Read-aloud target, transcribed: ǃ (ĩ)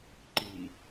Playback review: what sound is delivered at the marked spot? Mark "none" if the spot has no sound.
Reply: i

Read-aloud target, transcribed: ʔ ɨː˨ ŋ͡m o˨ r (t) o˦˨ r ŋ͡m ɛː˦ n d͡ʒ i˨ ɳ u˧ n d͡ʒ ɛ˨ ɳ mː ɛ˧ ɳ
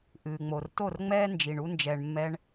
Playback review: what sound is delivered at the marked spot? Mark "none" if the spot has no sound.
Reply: t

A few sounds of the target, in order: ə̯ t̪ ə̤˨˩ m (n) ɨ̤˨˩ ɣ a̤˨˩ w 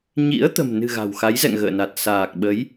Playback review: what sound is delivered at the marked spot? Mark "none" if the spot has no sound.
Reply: n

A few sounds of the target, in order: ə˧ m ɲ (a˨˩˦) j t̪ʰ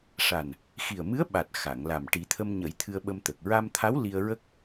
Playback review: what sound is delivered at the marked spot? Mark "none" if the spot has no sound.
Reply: ə˨˩˦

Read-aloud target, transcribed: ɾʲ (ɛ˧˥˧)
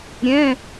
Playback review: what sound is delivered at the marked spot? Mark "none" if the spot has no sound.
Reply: ɛ̃˧˥˧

